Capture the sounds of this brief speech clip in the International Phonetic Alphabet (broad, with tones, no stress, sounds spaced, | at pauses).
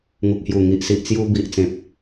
ŋ u˨ k̚ h j u˨˩ ŋ i˨ ʔ s i˨ ʔ t͡s j u˧ b i˨ ʔ t͡s ẽ˨ p̚